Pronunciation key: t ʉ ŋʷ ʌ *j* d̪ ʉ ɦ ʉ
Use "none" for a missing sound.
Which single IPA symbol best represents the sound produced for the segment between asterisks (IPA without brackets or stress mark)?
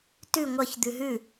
ç